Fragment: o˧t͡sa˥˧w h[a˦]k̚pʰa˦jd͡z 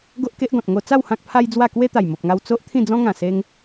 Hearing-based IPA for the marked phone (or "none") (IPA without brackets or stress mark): ã˦